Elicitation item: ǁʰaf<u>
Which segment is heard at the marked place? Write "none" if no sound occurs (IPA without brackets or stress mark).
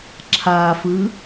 ɯ